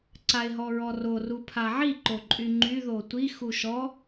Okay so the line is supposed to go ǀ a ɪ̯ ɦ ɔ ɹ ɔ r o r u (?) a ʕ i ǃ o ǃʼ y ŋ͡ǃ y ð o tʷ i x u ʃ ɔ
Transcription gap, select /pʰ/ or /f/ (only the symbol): pʰ